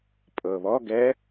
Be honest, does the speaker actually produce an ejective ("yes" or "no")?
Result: yes